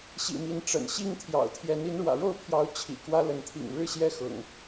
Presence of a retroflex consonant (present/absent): present